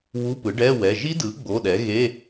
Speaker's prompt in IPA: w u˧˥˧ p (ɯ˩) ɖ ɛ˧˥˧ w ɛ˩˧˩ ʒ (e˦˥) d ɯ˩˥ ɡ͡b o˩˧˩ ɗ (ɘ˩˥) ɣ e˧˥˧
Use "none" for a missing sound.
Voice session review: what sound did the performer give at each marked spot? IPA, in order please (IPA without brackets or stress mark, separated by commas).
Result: ɯ˩˥, i˦˥, ɛ˩˥